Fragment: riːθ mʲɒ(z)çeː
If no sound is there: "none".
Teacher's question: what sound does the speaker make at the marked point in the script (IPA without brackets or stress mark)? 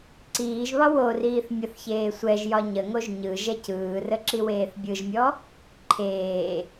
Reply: θ